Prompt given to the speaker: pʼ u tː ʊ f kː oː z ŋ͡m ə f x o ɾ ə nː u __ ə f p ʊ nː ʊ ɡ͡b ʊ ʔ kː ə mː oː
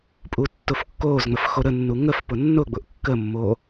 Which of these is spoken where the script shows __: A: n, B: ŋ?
B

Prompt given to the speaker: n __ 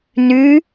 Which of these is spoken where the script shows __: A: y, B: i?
A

